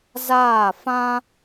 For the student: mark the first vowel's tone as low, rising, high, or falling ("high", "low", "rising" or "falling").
falling